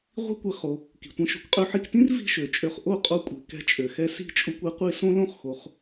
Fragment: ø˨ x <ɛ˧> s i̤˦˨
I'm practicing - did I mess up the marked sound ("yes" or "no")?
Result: no